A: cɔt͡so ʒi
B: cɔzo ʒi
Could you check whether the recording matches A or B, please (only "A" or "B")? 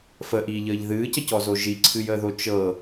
B